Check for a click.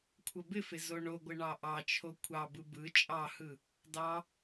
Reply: absent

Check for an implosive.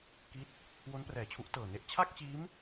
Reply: absent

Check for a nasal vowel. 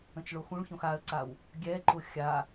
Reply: present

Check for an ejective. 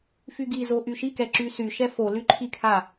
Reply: absent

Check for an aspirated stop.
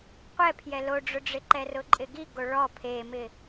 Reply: present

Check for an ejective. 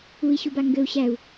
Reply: absent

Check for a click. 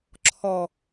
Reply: present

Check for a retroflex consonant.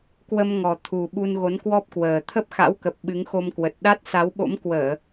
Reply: absent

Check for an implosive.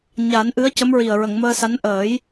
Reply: absent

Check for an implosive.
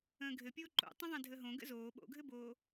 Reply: present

